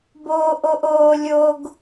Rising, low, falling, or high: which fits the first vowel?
high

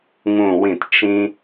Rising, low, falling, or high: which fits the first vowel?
falling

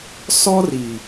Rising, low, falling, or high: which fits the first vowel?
high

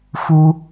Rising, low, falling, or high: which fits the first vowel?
high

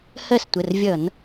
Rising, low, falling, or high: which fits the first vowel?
falling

